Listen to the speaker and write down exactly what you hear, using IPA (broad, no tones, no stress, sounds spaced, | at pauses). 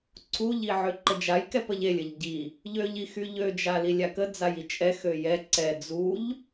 ǀʰ u ʎ i ʕ ø ǃ ə d͡ʒ a j k ɛ p ə ʎ e lʲ ə ʎ ɟ i | ʎ ø ʎ i x y ʎ ø d͡ʒ a l i lʲ a k ə d͡z a j i t͡ʃʼ ɛ x ø j ɛ ǀ ɛ d͡z u ʎ